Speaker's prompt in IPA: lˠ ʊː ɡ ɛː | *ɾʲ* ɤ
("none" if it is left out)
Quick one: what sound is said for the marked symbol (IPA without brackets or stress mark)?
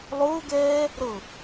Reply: ɾ